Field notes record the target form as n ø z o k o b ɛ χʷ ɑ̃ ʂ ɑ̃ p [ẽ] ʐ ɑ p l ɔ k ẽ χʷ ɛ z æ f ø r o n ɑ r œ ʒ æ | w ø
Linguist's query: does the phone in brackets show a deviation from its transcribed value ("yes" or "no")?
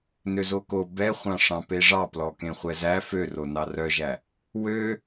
yes